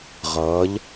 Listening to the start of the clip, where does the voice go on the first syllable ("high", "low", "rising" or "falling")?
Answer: rising